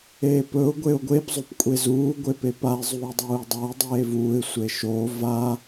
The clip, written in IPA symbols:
eː p ɵ ʊ̯ ɡʷ e ʊ̯ ɡʷ e p zˤ o p kʷʼ e z uː ɡʷ e p e p a ɪ̯ zˤ uː dˤ uː ɪ̯ dˤ a ɪ̯ dˤ eː v uː ɪ̯ sʷ e ʃ oː v a

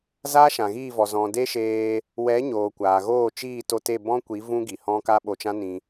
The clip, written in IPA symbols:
z aː˦ ʃ ã˨ ɣ iː˦˨ v ɔ˨ z ɔ̃˨ d e˦ ʃ eː˧ | w ɛ˨˦ ɲ oː˨ kʷ aː˨ ɣ oː˦˨ t͡ʃ iː˦˨ t o˧ t e˦˨ b ɔ̃˦ kʷ i˨˦ v ũ˦ ɡ i˨ h ɔ̃˦ k a˦ ɓ o˧ t͡ʃ ã˦ n ĩ˧

